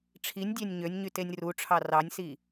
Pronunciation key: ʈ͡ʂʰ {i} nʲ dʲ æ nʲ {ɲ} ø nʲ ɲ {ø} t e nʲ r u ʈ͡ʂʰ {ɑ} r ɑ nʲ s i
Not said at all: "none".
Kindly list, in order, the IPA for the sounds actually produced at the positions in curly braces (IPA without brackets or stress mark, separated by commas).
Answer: i, ɲ, y, ɑ